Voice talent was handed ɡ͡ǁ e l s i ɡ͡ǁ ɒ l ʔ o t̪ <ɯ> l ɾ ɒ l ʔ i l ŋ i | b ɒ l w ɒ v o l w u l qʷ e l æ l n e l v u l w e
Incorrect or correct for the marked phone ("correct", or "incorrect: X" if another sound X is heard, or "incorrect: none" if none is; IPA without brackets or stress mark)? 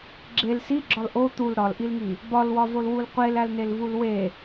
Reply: incorrect: u